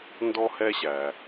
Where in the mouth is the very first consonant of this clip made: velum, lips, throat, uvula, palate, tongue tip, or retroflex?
tongue tip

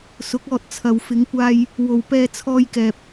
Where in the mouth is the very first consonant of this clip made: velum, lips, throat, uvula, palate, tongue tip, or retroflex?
tongue tip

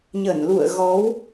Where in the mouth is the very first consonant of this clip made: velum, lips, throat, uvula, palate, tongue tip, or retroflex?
palate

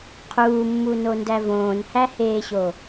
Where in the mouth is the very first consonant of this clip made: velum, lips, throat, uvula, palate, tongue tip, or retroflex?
uvula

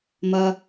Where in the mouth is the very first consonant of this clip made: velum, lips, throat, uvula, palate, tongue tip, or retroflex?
lips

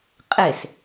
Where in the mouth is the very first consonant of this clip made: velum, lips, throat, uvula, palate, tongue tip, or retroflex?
uvula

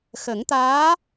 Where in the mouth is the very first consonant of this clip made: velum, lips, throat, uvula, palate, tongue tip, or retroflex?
velum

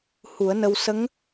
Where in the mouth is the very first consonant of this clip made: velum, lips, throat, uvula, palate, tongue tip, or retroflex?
throat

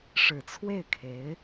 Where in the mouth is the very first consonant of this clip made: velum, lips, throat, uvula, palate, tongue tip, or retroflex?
retroflex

